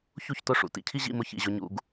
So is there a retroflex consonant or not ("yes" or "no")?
yes